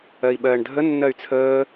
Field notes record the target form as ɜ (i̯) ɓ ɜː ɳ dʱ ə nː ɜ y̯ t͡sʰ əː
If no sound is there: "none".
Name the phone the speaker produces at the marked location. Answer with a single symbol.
i̯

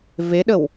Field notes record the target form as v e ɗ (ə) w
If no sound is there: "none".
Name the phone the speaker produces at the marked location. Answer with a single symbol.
ə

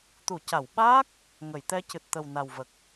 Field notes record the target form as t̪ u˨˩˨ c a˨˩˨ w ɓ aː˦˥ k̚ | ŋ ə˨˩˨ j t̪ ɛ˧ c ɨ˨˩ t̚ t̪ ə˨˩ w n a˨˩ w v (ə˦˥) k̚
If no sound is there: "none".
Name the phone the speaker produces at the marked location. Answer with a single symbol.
ə˨˩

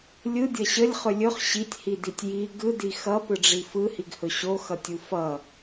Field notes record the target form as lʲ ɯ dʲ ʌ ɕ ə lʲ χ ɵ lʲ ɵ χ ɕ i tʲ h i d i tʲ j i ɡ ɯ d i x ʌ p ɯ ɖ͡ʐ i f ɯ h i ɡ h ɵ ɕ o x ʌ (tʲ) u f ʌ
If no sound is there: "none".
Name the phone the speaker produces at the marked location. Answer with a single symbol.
tʲ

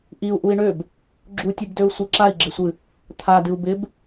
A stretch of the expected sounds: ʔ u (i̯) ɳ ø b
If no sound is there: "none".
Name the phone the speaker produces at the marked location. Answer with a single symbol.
i̯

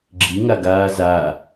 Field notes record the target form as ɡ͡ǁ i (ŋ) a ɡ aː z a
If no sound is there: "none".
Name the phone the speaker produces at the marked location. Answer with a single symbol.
ŋ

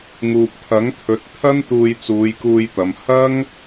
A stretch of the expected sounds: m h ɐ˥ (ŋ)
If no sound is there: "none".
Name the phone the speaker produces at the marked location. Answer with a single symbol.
ŋ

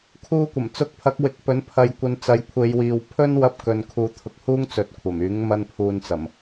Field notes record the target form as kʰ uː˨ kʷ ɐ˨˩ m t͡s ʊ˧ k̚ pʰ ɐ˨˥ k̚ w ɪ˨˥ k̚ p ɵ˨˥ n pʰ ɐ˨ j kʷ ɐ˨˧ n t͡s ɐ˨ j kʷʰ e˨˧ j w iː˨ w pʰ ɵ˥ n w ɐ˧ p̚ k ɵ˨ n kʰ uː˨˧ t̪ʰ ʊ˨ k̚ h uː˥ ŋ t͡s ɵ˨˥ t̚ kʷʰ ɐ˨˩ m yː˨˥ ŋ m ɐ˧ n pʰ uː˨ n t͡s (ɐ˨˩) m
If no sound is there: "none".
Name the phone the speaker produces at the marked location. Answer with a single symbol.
ɐ˨˩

